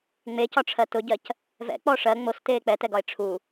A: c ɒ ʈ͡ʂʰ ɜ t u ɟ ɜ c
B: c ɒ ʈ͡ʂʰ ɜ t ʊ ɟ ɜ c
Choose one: B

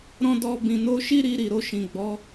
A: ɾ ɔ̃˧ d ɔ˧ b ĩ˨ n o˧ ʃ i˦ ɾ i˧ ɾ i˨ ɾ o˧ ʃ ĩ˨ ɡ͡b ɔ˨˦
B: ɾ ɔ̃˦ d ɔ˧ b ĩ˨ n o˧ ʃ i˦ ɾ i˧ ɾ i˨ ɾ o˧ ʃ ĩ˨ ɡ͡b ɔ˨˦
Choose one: B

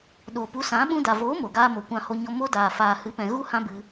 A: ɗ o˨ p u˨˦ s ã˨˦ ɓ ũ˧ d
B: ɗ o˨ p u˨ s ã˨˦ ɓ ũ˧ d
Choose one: A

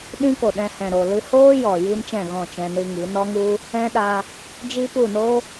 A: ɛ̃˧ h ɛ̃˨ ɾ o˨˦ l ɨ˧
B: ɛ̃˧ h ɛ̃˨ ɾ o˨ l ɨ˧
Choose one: B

